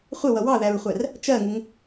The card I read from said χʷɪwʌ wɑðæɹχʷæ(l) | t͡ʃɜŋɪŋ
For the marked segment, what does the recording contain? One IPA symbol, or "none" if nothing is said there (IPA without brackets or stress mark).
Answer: r